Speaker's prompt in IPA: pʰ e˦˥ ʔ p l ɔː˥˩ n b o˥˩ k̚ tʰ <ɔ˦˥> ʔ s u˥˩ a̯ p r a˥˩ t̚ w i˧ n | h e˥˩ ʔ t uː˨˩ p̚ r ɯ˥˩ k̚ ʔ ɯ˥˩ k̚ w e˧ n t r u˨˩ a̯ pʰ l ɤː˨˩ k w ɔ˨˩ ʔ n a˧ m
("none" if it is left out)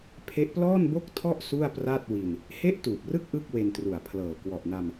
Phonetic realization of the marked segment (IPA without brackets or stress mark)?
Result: ɔ˥˩